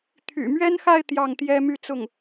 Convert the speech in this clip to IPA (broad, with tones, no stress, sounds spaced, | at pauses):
t̪ʰ y̰˨˩ m ɥ ɛ˥ n x a˥˧ ɪ̯ t̪ j ɑ˥˩ ŋ t̪ j ɛ˥ m y˥˧ t͡s ʊ˥˩ ŋ